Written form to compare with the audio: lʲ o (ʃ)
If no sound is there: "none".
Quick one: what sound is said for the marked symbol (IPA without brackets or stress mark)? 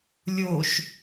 ʃ